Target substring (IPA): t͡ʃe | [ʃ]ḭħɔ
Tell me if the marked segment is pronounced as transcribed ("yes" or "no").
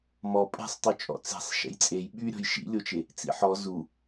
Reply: no